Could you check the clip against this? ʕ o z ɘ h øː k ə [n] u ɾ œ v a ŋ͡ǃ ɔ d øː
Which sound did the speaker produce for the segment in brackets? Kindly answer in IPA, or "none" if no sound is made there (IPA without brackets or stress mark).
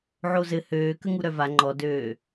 ŋ